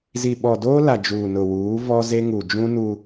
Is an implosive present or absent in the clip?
present